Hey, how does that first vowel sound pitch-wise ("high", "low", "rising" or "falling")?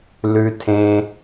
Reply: high